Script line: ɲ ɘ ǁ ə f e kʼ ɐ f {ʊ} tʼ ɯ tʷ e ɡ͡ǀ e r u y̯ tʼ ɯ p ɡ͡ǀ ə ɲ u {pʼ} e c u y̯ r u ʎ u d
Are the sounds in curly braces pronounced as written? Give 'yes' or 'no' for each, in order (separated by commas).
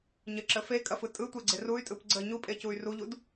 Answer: no, yes